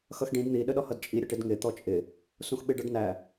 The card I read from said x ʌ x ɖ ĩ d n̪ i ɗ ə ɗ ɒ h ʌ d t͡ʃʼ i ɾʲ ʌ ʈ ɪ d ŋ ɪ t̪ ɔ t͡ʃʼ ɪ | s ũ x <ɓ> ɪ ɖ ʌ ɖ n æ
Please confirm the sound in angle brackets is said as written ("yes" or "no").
yes